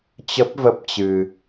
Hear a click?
no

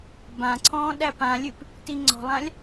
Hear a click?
yes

